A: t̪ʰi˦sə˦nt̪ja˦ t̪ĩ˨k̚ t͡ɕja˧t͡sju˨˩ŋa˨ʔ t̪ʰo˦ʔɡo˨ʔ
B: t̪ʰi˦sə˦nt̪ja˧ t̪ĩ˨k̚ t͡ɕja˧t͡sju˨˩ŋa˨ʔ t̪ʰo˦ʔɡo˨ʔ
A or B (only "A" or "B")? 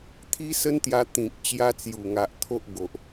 B